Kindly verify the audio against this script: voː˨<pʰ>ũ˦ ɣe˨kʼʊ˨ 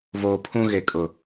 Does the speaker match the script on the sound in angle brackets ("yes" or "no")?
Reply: yes